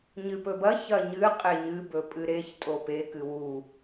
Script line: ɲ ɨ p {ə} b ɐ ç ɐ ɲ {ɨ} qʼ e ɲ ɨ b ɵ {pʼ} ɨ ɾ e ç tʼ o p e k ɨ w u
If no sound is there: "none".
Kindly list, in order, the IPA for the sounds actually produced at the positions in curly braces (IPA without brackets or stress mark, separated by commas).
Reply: ɵ, ɨ, pʼ